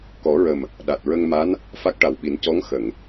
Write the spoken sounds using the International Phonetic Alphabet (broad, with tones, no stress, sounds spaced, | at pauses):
k ɔ˨˩˦ ɹ ə˨˩ m | ɗ a˨˩ t̚ ɹ ə˧ ŋ m a˧˥ n | f a˦˥ k̚ ʈ a˨˩ w ɓ i˨˩˦ n c ɔ˧˥ ŋ x ə˨˩˨ ŋ